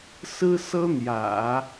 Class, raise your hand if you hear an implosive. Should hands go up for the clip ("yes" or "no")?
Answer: no